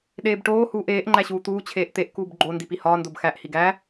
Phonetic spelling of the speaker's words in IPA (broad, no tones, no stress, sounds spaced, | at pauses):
ɗ eː b ʈ oː h uː ʔ eː ʔ ŋ͡ǃ æ ɕ uː t̪ uː t͡ɕʰ eː ʔ t̪ e ʔ k uː b ɡ͡ǃ o n d i p i h ɒː n d o b x æ ʔ h i ɡ æ